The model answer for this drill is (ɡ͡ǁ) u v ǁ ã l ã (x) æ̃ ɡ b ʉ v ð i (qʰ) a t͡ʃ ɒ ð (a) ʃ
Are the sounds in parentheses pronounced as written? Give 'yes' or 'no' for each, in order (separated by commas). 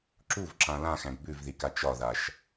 no, yes, no, yes